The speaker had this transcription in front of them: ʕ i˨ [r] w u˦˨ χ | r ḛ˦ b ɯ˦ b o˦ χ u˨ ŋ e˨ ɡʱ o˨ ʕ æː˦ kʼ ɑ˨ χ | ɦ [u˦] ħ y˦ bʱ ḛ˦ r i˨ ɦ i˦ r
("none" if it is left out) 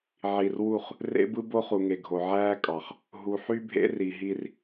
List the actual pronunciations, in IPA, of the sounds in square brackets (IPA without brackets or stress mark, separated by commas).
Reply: r, u˨